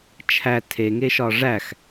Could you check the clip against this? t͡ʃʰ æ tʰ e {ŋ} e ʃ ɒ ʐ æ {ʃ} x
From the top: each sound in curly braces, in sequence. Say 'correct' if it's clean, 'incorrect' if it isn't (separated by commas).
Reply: correct, incorrect